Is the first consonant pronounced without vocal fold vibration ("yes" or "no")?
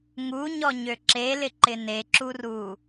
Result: no